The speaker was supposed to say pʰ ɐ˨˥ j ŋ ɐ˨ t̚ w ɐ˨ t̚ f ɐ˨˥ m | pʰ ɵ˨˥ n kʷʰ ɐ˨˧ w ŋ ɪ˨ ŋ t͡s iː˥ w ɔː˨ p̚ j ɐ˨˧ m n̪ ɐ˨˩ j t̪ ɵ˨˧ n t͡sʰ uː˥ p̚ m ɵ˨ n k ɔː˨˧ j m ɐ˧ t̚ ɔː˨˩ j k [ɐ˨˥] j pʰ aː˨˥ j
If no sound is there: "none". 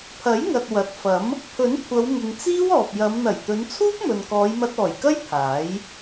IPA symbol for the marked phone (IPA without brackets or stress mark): ɐ˥